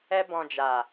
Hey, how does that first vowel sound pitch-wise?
high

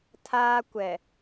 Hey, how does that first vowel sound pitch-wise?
high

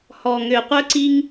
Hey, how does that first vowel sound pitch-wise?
low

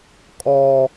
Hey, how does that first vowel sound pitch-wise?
high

